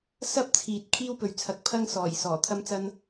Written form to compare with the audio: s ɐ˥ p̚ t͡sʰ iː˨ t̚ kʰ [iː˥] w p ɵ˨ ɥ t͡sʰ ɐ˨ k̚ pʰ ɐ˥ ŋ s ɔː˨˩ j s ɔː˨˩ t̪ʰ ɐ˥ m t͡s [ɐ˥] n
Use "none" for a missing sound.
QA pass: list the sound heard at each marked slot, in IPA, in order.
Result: iː˥, ɐ˥

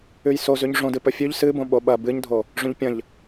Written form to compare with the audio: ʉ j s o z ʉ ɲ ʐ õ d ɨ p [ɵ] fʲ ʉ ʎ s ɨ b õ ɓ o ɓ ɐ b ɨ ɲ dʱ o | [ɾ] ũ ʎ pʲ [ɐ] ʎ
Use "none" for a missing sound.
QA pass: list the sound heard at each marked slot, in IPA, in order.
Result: ɵ, ʐ, ɐ̃

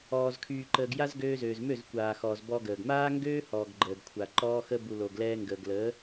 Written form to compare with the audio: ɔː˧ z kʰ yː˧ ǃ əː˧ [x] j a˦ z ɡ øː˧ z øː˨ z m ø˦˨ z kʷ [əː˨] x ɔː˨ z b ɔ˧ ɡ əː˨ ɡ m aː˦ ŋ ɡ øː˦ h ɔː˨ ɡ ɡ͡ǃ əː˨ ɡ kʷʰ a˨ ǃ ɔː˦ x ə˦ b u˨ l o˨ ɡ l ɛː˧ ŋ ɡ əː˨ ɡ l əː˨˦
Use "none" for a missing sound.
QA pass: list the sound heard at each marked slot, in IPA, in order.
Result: ɡ, aː˨

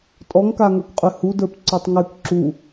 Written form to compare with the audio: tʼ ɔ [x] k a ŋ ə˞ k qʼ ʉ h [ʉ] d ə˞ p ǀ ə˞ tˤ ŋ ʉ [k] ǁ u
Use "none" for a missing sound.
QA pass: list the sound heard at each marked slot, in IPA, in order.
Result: ŋ, u, k

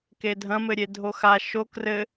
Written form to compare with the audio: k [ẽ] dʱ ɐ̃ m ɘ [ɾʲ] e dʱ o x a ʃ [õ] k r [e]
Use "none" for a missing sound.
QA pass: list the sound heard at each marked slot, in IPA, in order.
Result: e, ɾʲ, o, ɘ

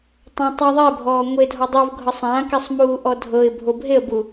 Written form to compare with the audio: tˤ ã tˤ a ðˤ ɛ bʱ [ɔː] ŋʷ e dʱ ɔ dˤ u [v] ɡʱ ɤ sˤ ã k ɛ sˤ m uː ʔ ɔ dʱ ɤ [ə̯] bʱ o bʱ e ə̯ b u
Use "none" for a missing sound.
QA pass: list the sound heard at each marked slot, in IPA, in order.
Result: ɔː, v, ɪ̯

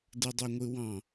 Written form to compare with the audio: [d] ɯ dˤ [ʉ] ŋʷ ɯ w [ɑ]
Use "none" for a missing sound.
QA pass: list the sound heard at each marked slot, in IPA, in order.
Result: d, ø, ɑ̃

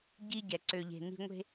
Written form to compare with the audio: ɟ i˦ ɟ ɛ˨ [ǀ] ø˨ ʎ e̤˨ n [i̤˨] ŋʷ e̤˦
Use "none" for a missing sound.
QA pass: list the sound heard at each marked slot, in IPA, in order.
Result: ǀ, i̤˦

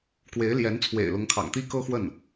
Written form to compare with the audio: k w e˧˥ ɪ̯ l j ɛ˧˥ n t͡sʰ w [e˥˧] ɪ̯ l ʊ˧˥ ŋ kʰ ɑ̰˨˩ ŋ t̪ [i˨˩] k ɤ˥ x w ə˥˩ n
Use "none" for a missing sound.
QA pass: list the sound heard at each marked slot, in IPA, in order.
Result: ḛ˨˩, i˥

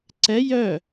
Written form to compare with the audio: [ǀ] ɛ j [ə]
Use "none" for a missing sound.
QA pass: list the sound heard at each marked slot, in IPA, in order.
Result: ǀ, œ

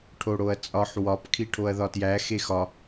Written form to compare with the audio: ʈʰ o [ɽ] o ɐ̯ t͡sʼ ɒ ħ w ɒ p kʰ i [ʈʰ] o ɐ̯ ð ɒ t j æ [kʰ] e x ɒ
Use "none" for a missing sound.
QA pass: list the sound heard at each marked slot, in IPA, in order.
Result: ɽ, ʈʰ, x

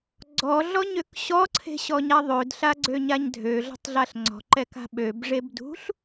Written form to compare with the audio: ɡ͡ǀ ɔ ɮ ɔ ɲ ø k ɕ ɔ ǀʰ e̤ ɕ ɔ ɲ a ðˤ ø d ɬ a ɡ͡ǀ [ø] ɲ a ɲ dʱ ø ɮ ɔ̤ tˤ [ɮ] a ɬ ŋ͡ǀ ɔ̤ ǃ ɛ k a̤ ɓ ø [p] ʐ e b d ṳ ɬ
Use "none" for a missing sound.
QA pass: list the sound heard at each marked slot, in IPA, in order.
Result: ø, ɮ, b

